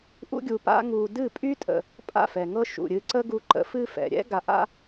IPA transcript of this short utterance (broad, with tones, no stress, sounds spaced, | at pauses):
ʔ ṵ˧ ɡʲ u˨ p a̰˧ ŋ u˨ d ɨ˦˨ pʼ y˦ tʼ ə̰˨ | pʼ a̰˦˨ f ɛ˨ ŋ ɤ˦ ʃ ṵ˨ ɾʲ ɨ˧ ǀ ə˦ ɡ u˧ ǃ ə̰˨˦ f ɨ˦ f ɛ̰˨ ɾʲ ɛ̰˦ ɡ a˧ ʔ a̰˦